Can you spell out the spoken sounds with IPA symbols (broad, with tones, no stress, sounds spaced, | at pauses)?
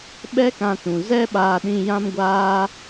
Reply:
ɓ ɛ˦ k ã˧ t ũ˨ z ɛ˦ ɓ aː˧ ɗ ĩ˧ j ã˦ m ɡʷ aː˦